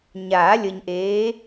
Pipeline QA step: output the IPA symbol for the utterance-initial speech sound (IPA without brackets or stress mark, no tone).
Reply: ɲ